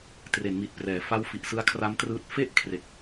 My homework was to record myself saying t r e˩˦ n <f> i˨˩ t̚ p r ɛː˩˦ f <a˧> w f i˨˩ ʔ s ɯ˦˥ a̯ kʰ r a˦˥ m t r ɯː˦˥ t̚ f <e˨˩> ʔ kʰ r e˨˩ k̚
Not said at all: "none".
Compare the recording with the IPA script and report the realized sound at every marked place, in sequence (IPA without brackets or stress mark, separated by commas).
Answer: m, a˦˥, e˥˩